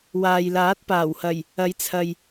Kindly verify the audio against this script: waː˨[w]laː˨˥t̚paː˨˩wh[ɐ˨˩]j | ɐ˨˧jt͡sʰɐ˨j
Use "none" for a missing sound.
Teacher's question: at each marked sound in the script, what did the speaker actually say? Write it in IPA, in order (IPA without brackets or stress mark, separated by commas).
j, ɐ˨˩